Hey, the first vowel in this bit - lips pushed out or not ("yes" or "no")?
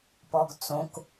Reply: yes